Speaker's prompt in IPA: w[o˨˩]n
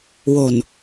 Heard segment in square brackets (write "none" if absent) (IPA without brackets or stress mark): o˨˩